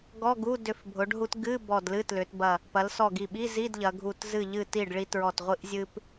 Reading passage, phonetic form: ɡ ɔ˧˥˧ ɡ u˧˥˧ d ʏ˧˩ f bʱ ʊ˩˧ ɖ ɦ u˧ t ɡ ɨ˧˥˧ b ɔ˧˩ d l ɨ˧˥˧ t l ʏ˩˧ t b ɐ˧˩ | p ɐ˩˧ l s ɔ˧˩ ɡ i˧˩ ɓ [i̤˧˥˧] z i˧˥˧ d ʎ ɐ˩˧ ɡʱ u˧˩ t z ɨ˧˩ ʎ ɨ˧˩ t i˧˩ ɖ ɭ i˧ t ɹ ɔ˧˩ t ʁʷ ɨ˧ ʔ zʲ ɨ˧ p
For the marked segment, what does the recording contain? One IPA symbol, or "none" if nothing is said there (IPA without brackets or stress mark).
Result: i˧˥˧